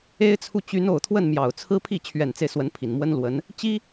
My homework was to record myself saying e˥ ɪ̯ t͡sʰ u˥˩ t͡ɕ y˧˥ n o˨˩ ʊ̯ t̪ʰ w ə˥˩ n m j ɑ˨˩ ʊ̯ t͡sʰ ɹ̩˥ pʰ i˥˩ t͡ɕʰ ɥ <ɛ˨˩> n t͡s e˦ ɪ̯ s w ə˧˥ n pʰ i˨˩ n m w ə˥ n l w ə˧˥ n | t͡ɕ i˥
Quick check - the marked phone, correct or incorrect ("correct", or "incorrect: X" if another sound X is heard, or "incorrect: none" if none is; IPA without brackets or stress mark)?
correct